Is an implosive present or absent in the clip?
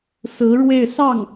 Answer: absent